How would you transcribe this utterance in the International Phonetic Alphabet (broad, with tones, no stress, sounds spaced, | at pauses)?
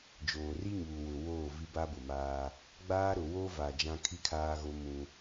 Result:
d͡ʒ oː˨ r i˦ ɲ uː˨ w ʊ˨ w oː˦˨ v i˦ b a˦ b ʊ˨ m aː˦ | ɡ͡b aː˦ ɾ ʊ˨ w o˦ v a˨ d͡ʒ ã˦ kʰ i˦ kʰ aː˦ ɣ o˦ m ũ˦